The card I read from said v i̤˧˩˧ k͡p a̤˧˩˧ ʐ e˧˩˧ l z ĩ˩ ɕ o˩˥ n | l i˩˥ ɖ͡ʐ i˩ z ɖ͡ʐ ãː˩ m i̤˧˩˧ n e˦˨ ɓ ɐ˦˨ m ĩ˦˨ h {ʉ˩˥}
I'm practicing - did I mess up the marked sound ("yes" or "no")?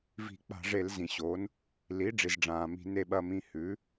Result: no